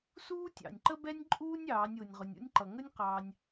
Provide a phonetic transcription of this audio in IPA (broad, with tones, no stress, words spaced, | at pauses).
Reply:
suː˥tʲɑ̰˩nʲǃə˥bɛ˥nʲ ǃʼuː˥nʲɑː˩˧nʲ ʊː˩nʲʁʊ˩nʲṵ˧nʲǃʌ˩ ŋə˥nʲqɑː˧nʲ